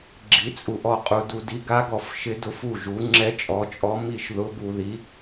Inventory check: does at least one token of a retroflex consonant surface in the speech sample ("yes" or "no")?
no